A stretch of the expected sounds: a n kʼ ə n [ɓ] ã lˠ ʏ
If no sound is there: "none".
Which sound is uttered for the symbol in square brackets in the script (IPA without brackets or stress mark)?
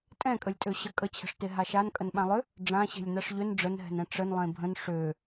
ɓ